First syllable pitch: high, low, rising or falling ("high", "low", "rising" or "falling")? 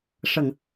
low